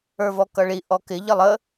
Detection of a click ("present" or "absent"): absent